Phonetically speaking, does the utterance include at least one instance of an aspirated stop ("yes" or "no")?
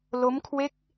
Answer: yes